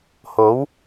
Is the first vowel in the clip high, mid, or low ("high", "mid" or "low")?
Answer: mid